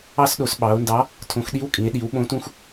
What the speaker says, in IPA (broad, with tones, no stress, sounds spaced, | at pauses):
ɑ˧ s ɗ o˩˧ s ɓ ɑ˩˧ o̯ n d ɑ˨˥ | tʰ õ˩˧ x ɗ i˨˥ w kʼ ĩ˩˧ e̯ ɗ i˩˧ w ɓ õ˨˥ t ũ˧ x